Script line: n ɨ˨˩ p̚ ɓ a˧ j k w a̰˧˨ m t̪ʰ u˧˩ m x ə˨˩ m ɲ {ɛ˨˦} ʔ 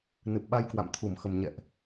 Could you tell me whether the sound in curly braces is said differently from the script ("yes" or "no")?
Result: yes